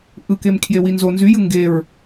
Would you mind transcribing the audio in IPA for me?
ʔɯkemkʰjewi nzo nzyjɯ ŋɡeɹ

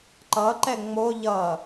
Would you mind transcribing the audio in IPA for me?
ǃʌǃɛ ŋ͡mo ʎʌ

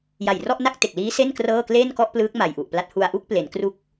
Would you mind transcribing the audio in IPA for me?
ja˨˩jrɔ˥˩ʔna˥˩k̚te˨˩k̚ liː˦˥se˥˩n krɤː˥˩ kle˥˩nkɔ˥˩ʔplɯː˦˥k̚ ma˨˩jʔu˨˩ʔpla˦˥t̚ hu˧a̯ʔu˥˩k̚ple˩˦n kru˦˥k̚

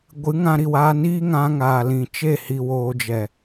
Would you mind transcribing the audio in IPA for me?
ɡʷɨ˨˦ŋã˧ɾi˨waː˧ niː˦ŋã˧ŋaː˨lĩ˨ t͡ʃe˦˨ hi˨woː˨d͡ʒɛ˨

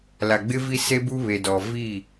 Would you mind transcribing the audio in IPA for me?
la˨ɡ͡bɪ˦vi˦ se˦bu˦βe˨dɔ˨ vi˦˨

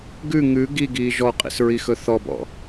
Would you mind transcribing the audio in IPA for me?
ɡʉ ŋʉ ɡiɡiː ʒɔqʼḭsɹixɵ θɔbɔ̰

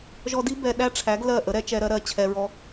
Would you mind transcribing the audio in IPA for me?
ʒɔ˧di˦ bɛ˧ɗæ˦ʈ͡ʂʰæ˨˦ɡ lɜ˦˨ʔə˨˦ɾɛ˧t͡ʃɛ˧ ɾɜ˦ɾɜ˦˨ t͡ɕʰɛ˧ɹɔ˧

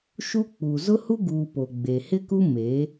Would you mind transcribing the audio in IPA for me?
ʃu˦k͡pu˨ zʊ˦hu˦ɡuː˨ po˨ɡ͡be˨hɪ˦ku˦ me˨˦

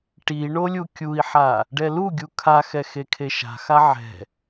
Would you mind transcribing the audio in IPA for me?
ʈiɳo lʲukʲui̯ħa | ɖɛluɡʲu kʰaxɛ xekʰeʃa̤xa ʕɛ̤

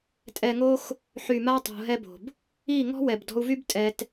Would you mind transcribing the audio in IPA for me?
tʼɛ˨ŋo˧x | ħy˨ma˧ tˤo̤˧ɦɛ˦bo̤˨b | i˦˨ ŋɔ̤˦wɛ˨bdɔ̤˧u̯vy˦b tʼɛ˧t

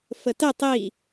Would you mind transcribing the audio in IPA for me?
fətə tˤi

